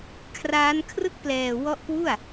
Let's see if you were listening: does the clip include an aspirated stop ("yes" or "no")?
yes